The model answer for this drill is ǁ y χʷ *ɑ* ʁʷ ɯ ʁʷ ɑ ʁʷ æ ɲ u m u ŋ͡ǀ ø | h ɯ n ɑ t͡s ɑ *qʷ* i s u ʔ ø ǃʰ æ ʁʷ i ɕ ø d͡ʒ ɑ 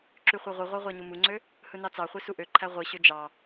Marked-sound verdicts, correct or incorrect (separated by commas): correct, incorrect